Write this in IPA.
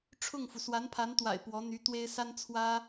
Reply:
ʈ͡ʂʰʊ˥˩ŋfu˩ swa˧˥npʰa˧˥nt̪wa̰˨˩ɪ̯ pwɔ˧˥n̪y˧˥t̪we˥ɪ̯ sa˥nt͡sʰwä˥

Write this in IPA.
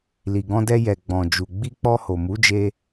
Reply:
li˨ɡɔ̃˧dɛ˧ jɛ˨ ɡ͡bɔ̃˨d͡ʒu˨ ɡ͡bi˧k͡pɔ˧ho˨ mu˨˦d͡ʒe˧

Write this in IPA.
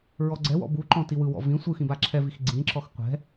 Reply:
ɹɔɡ͡ǀɛwɔ̰ buǃɔ̃ tiwɯwɔ̰ vĩ sʷɯxĩ baǁʰɛvix ɡ͡ǀĩǁɔx qʷɛ̤

